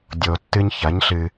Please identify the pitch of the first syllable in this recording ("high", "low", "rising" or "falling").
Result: low